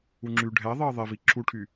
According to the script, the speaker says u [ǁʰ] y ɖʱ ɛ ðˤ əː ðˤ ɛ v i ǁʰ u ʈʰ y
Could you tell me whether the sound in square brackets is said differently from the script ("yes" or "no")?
yes